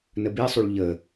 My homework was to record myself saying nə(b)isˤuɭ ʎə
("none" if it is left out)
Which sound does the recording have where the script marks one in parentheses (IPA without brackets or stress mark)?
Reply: b